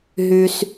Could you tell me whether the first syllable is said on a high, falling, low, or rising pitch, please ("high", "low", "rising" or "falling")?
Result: high